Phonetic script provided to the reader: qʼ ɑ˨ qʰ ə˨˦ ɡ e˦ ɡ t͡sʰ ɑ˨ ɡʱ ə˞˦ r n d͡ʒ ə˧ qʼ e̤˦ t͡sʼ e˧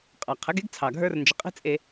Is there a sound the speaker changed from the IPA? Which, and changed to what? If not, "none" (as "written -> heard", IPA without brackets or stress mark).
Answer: none